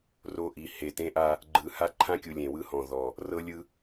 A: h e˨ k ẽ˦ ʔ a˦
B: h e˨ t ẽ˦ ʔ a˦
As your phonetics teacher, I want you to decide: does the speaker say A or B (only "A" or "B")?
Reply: B